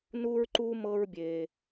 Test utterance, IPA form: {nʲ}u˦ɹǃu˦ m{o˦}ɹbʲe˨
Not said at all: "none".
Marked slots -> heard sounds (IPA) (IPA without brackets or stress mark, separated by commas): n, ɤ˦